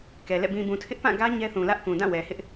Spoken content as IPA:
k ɛ˨ l ɛ̰˦˨ b ĩ˨ b ũ˨ tʰ ɪ˦ ʔ p ã˦˨ ɡ ä˦ ɲ ɛ˦ θ ũ˨ l ä˦ ʔ k ũ˨ d ã˦˨ w ɛ˨ h ɪ˦ ʔ

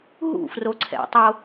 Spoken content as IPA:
ɦ ṵ f r o ǀʰ ɛ̰ tˤ o

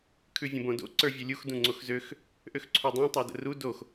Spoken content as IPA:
kʰ ʉ vʲ ə̃ b õ d o̰ ǀ ə˞ vʲ u lʲ u x d ũ ŋ͡ǀ o x z ø x | ʔ ø x ǀʰ u dˤ õ tˤ ə˞ d ə̰ r u d o x

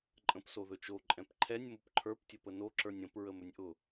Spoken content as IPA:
ǃʼ ə̃ p s o ð ɵ t͡ʃ o ǃʼ ɛ̃ p ǃʰ ɛ nʲ m ʊ p ǃʰ ə˞ p tʲ ə p ə n o ǁ ə˞ nʲ ə̃ p ɹ ə m ɵ nʲ ʔ ʊ

